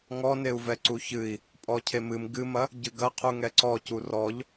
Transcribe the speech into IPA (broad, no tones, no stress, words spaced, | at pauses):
ŋɔneu̯vɛ ǀuçɨi̯ | pʼɔcʰemɨm ɡɨmɐ | ɟɨɡɐqʰu ŋɛǀɔcu rɔʎ